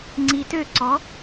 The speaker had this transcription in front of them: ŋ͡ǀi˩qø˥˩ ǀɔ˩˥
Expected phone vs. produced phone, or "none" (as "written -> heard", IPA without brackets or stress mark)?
q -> t